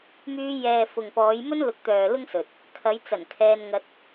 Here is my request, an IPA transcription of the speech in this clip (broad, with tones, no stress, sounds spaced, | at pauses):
m yː˧ j ɛː˨ f ʊ˨ ŋ p ɔː˨˧ j m ɵ˥ n l ʊ˨˥ k̚ t̪ œː˨ l ʊ˥ ŋ s ɵ˨ t̚ | kʰ ɐ˨˧ j t͡s ɐ˨˩ n kʰ ɛː˧ n ŋ ɐ˧ t̚